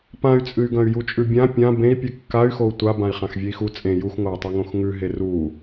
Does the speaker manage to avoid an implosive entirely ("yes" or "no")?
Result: yes